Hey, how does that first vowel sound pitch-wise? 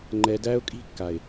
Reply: low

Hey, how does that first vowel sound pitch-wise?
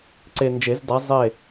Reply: low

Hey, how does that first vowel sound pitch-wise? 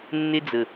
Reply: high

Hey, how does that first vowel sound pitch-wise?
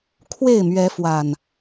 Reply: falling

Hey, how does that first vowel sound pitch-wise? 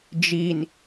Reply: low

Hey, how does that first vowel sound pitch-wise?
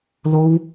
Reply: high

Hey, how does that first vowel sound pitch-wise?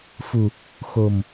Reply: low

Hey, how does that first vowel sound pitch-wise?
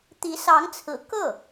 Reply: rising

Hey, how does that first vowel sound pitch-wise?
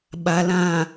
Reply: low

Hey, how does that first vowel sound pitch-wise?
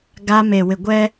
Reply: high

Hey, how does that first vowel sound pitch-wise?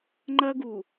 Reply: high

